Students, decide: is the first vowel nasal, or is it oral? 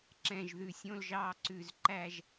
nasal